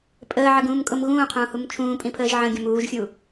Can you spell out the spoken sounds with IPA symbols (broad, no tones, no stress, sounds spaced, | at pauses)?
pʼ əː ʕ ə ɡ ũː m kʼ ʊ m ɣ ũː qʰ ũː h u m t͡ʃʰ ũː pʼ ĩ pʰ əː ʒ ʕ ə̃ ɡʲ ə̃ m uː ʒ xʲ u